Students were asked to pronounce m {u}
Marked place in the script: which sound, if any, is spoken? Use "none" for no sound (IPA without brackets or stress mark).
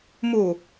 u